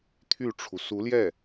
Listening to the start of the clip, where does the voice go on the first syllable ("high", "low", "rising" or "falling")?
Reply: falling